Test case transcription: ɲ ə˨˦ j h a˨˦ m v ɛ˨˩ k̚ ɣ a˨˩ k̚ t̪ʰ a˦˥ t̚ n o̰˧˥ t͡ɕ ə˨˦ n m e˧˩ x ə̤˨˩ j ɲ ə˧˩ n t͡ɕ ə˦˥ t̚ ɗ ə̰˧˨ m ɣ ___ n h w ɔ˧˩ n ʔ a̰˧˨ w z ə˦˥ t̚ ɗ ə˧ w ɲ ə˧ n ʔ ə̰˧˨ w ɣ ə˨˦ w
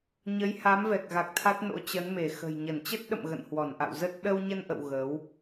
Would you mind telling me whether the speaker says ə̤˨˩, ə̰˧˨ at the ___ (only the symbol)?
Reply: ə̰˧˨